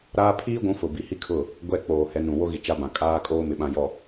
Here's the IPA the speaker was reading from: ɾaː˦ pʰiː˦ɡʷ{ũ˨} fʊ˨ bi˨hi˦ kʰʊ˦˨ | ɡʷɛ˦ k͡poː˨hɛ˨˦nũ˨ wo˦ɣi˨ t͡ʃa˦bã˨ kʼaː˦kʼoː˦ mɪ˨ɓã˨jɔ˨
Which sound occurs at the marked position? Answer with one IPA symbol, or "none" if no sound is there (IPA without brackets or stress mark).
ũ˨˦